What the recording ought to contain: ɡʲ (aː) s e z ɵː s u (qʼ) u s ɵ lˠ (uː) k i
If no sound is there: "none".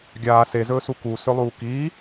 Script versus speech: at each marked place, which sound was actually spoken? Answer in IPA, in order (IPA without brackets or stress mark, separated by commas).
aː, k, uː